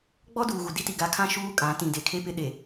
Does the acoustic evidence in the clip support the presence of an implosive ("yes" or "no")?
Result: yes